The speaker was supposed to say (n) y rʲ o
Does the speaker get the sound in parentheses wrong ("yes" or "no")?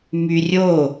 yes